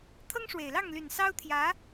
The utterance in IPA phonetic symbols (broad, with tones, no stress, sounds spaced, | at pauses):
t̪ʰ ɤ˥ ŋ ʂ w e˨˩ ɪ̯ l ɑ˥˩ ŋ l y˨˩ n s ɑ˥ ʊ̯ t̪ʰ j ä˧˥